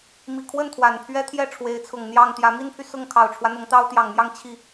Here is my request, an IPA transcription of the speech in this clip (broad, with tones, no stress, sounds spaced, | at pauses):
m i˨˩ kʰ w ə˥˩ n t̪ʰ w a˨˩ n pʰ ɥ ɛ˥ t̪ʰ j ɛ˥˩ ʈ͡ʂʰ w e˧˥ ɪ̯ t͡sʰ ʊ˨˩ ŋ n̪ j ɑ˥˩ ŋ t̪ j ä˧˥ m i˥ n pʰ y˨ s ʊ˥˩ ŋ kʰ ɑ˨˩ ʊ̯ ʈ͡ʂʰ w ä˦ n̪ ʊ˧˥ ŋ t̪ ɑ˥ ʊ̯ t̪ j ɑ˨˩ ŋ m j ɑ˥˧ ŋ t͡ɕʰ i˥˩